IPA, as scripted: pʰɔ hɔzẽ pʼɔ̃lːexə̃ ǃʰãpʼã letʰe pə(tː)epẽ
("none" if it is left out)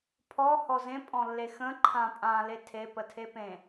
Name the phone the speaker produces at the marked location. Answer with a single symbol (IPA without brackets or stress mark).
tʰ